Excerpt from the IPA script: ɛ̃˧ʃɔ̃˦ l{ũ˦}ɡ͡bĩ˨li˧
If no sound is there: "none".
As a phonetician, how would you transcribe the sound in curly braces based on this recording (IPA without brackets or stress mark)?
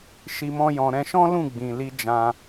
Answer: ũ˦˨